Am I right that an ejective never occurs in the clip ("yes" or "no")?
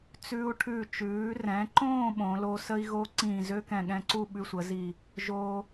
yes